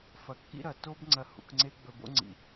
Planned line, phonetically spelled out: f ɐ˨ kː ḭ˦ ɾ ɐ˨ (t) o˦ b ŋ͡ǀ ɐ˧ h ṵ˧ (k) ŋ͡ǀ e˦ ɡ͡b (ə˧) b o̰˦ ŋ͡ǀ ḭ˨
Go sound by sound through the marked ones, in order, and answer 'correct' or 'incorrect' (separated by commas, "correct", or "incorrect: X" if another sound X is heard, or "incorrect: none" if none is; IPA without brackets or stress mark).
correct, correct, incorrect: ɵ˧